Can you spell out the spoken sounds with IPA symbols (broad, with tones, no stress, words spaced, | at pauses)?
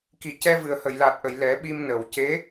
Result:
ki˨˩˨ cɛ˧vɨ˨˩ə̯ hə˨˩˨jla˨˩t̚ʔə˨˩˨j lɛ˨˩˦ɓi˧mnə˨˩˨w ce˧˥